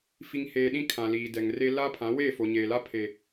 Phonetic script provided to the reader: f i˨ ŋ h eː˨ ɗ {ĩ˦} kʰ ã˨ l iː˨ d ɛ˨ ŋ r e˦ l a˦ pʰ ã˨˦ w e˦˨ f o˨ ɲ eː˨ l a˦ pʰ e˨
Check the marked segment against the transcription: correct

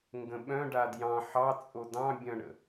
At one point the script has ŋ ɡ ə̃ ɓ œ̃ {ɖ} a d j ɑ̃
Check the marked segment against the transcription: correct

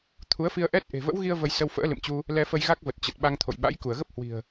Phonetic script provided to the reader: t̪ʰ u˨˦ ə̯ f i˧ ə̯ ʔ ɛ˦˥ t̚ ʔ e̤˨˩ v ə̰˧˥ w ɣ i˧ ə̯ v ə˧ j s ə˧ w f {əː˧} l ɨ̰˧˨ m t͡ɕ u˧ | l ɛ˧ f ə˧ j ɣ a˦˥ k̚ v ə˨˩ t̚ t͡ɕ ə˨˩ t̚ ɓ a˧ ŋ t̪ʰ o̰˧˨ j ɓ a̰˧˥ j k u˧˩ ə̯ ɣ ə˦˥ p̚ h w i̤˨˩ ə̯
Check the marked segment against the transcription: incorrect: ə̰ː˧˥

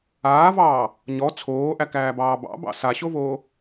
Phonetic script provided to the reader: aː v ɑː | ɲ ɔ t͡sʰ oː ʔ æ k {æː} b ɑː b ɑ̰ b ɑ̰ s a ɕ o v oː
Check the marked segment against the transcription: correct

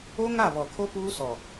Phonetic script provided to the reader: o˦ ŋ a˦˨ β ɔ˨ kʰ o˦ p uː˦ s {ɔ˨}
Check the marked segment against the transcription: correct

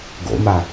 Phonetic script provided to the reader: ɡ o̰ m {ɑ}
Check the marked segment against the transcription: incorrect: a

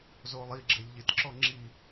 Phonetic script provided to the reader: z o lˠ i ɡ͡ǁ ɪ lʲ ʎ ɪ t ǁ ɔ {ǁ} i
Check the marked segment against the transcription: incorrect: ŋ͡ǁ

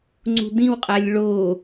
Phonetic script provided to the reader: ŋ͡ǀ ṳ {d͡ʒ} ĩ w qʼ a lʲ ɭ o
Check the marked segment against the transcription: incorrect: d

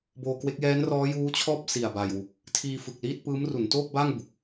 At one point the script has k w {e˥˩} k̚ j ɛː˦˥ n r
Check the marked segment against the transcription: incorrect: e˦˥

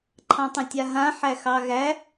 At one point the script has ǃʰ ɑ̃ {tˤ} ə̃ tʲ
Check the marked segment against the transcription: correct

